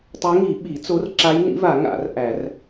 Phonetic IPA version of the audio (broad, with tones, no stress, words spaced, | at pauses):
tˤe˧˥ŋi˨˩˦ɓi˨˩˦t͡so˧˥r ǁa˧˥jnḭ˧˥va˨˩˦ ŋa̰˨˩˦r ʔæ˨˩˦r